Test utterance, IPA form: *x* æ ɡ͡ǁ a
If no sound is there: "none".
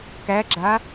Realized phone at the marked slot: k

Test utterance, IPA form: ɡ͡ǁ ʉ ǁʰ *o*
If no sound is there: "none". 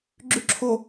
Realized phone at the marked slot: o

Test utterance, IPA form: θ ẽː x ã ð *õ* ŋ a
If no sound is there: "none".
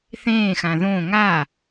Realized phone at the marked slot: õ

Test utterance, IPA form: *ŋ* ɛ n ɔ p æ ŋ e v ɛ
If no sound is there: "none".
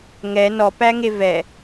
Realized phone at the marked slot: ŋ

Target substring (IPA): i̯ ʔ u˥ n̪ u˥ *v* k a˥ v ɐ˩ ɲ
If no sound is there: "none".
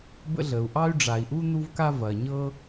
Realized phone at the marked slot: v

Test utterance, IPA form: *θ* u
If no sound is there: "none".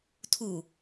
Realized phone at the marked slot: tʰ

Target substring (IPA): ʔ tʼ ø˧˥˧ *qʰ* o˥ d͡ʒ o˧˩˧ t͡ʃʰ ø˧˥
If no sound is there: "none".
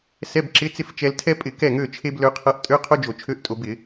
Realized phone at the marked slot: qʰ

